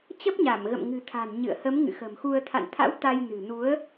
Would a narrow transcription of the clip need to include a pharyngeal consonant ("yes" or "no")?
no